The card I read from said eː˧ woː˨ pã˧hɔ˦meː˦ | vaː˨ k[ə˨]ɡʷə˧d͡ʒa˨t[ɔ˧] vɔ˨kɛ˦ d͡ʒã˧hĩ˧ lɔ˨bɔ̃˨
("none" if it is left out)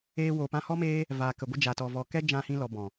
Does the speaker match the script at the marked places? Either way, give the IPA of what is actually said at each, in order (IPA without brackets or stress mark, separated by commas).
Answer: ə˨, ɔ˨